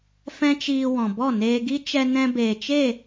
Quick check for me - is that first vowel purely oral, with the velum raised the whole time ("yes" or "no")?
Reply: no